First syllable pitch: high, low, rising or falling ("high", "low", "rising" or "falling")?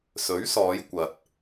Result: rising